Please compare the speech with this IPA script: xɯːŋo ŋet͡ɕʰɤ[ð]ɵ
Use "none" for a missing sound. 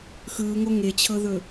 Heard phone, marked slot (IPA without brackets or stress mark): ð